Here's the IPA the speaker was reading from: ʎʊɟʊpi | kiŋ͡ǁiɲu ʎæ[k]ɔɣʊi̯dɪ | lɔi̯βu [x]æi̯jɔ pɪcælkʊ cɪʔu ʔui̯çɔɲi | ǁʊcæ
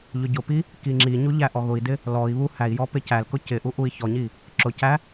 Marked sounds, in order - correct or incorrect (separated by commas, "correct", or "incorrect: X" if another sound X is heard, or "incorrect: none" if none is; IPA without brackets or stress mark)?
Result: incorrect: ʔ, incorrect: h